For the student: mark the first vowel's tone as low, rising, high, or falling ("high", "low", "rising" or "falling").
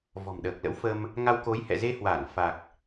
low